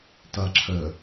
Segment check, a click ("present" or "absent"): present